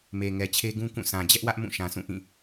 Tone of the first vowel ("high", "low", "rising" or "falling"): low